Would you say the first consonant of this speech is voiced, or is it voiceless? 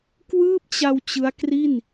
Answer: voiceless